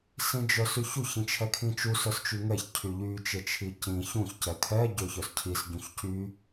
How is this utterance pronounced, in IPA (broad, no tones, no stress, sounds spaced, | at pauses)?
s ĩ d͡ʒ œ s y ç u ç ĩ t͡ʃʰ ɛ kʰ ĩ t͡ʃ u s œ s t͡ʃ y ŋ ɛ ç cʰ y ʎ y t͡ʃ e t͡ʃʰ i c ĩ ç ũ ç c ɛ kʰ ɛ ɟ ø ç œ s cʰ i s ɟ ũ ç c y